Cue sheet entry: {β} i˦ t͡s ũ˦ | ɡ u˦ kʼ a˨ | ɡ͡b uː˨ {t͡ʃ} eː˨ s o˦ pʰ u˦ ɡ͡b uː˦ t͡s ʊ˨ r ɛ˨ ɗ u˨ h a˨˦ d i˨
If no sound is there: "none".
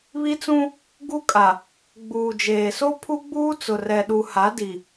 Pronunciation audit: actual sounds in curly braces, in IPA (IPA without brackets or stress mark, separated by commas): β, d͡ʒ